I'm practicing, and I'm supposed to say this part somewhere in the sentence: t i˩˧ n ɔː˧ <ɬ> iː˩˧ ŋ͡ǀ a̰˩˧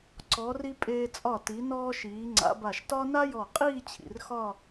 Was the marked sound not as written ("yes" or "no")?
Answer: yes